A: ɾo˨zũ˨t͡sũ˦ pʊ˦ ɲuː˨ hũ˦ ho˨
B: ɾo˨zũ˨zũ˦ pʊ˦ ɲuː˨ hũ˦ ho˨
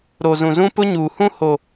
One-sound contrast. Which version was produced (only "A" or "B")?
B